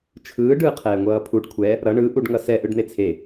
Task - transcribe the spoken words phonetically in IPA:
t͡ʃʰɯːɖ ɯːqʰɛːŋʷʌːpʰuɖ kʷʰɛ | ɾʌ ɳɯ ʔuɖŋʌsɛ ʔɯɖn̪et͡sʰe

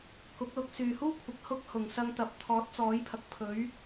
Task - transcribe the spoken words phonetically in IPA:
kʊ˨˥k̚lʊ˧k̚ syː˨huː˥kʷʰɪ˨k̚ hʊ˥k̚hʊ˨ŋ sɐ˧ŋt̪ɐ˨˥p̚ t̪ʰɔː˨˥t̚t͡sɔː˨˥jpʰɐ˨k̚pʰɵ˨˥ɥ

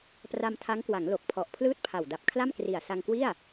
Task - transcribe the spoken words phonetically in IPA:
pra˧mtʰa˦˥ŋkwa˩˦ŋ lo˨˩k̚pʰɔ˨˩ʔpʰlɯː˥˩t̚pʰa˨˩w da˨˩p̚kʰla˥˩mkri˨˩a̯ sa˧ŋkwi˥˩a̯

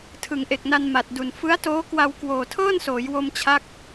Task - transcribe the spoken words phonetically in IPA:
tʰɯ˩˦ŋʔe˨˩k̚na˧n ma˨˩t̚du˨˩n fɯ˦˥a̯toː˦˥kwa˧w kwoː˨˩tʰɤː˥˩nsoː˩˦j wo˧mt͡ɕʰa˦˥k̚

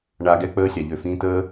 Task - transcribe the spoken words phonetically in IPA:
ɳa˨ ɡɛ˧ k͡pəː˧sʲa˨ʎø˨fĩː˧ t̪ə˦

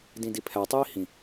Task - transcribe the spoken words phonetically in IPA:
dĩdipʰæ tˤiːhĩ

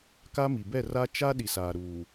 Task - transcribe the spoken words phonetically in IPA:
ka˦mi˨ bɛ˦˨ra˦ t͡ʃa˦ ɗi˨saː˨ ɾuː˨

